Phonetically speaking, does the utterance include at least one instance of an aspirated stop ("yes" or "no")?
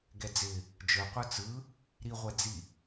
no